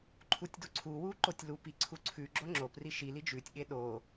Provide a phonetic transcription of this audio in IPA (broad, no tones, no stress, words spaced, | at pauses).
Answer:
ǃʰutʲduǀʰuwu ǃotʲlupi ǀʰuǀʰʉɡ͡ǁo ŋ͡ǁopri ʃili d͡ʒʉtʲɠe ɗo